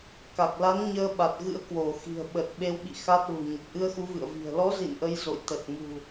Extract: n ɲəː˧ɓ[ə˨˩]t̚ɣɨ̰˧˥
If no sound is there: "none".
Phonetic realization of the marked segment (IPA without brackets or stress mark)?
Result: a˨˩